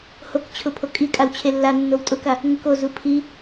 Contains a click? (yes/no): no